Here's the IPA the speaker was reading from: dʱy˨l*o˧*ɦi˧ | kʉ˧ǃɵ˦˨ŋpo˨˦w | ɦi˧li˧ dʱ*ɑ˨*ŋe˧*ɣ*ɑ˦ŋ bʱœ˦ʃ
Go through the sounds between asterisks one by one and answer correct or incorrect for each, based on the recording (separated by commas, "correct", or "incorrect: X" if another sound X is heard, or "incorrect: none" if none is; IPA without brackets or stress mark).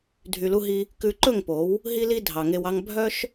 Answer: incorrect: u˧, correct, incorrect: w